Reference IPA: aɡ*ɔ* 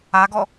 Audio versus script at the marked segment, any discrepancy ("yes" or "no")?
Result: no